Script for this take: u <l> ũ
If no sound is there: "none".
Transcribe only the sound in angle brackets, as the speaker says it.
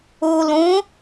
l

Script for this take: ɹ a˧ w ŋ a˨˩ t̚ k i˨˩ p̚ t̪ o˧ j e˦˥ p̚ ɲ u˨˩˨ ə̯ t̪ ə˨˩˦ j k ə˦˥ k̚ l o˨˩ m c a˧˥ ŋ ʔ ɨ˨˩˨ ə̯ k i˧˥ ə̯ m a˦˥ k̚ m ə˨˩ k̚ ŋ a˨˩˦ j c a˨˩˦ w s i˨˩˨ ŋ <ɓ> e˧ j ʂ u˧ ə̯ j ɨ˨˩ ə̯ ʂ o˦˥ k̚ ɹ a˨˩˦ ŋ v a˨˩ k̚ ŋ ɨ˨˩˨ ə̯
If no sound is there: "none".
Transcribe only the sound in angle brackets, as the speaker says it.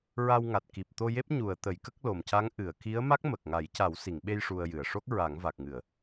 ɓ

